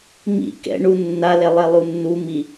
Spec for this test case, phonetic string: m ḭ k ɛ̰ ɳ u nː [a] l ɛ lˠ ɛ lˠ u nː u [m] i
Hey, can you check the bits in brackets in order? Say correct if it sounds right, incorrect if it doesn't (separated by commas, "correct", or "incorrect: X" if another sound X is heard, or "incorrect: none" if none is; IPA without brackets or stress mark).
correct, correct